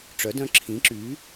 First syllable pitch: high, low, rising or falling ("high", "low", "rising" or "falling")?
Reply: rising